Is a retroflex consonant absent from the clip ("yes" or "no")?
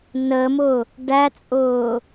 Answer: no